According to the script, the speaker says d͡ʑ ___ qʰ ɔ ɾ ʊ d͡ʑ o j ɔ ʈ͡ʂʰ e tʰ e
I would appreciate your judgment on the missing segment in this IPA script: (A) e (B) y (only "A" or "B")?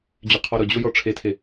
B